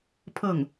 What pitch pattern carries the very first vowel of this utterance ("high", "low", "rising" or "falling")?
falling